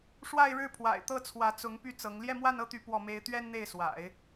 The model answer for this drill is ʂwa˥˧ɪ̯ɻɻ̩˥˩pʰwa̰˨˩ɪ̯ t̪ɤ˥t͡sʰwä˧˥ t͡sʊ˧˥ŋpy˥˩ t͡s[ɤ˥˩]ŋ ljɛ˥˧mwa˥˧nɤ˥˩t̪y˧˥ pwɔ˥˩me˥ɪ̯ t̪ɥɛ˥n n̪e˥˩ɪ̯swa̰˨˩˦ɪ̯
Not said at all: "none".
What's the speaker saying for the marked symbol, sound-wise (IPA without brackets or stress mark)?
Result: ɤ˧˥